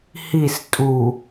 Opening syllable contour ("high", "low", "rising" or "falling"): falling